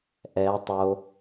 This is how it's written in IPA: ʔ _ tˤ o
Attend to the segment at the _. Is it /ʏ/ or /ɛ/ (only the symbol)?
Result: ɛ